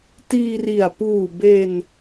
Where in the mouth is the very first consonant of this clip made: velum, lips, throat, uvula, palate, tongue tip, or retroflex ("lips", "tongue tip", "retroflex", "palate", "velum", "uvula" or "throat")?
tongue tip